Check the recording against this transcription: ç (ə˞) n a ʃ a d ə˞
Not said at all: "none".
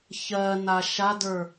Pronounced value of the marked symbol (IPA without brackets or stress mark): ɜ